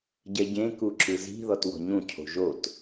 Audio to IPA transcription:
ɟɛɟẽ kuǁɯzi̤ ðɔtwɔ̤ɲũ cʰo̤ʒot

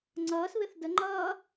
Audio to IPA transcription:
ŋ͡ǀʌːsβɪθ də ŋ͡ǃʌː

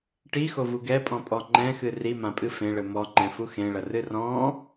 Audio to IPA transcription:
ʈixovu ɡɛpʼɔ̃pʼɔ ŋ͡ǃɛ̃xɨ rimãpʼɨ fẽɭɘ mɔŋ͡ǃɛ̃fu xẽɭɐrɨ rɔ̃

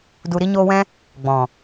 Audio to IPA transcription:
du˨ɾi˧ɲoː˧wɛ̃˦ | ɡ͡bɔ̃˨

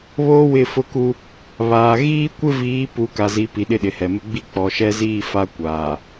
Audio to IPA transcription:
βoː˦wɪ˦˨fʊ˦ku˦ | βaː˨ ɣiː˦ kʷɪ˦viː˨˦ pu˨˦ka˨zi˨˦ pi˨ ɗɪ˦ɗɪ˨hɛ˨mɪ˦ ɡ͡bi˦ k͡pɔ˨ʃɛ˦ziː˦˨fa˦ kʷaː˨

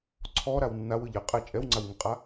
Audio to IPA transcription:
ǀʰɔ ɾawnːaw ɯʎɪ qʼɛ t͡ʃʼɛwŋ͡ǀawŋɪqʼa

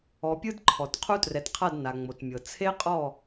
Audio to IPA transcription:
ɔ˨pʲɯ˦d ǃʰɔ˨t qʰu˦trɛ˨tqʰa˦˨d na˨ŋ͡mo˨tmʲɤ˨ t͡sʰe˦qʼɔ˦˨

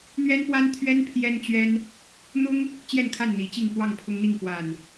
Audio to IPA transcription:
n̪ɥɛ˦npwa˦nt̪ʰɥɛ˦n pʰjɛ˦nt͡ɕɥɛ˦n | n̪ʊ˦ŋ | t͡ɕjɛ˥˨nkʰa˥˨nn̪i˨˦t͡ɕi˥˨ŋ pwɑ˥˨ŋpʰʊ˦ŋn̪i˥˨ŋ pwa˨˩n

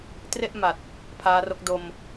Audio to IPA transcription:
tre˥˩ʔ ma˨˩t̚ | pʰaː˦˥ro˦˥k̚ do˧m

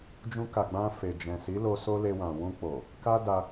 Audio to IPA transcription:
d͡ʒũ˧ka˨ ɡ͡bã˧ fe˨ d͡ʒɛ̃˨si˨˦lo˧ so˦le˧wã˨ wũ˧k͡po˨ | ka˦da˧

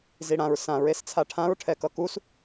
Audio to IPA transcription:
ziɽãɹ sãɹ est͡sʰaʈʰãɹ ʈʰɛkʌkus

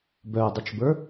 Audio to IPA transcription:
bœdˤət͡ʃbə˞

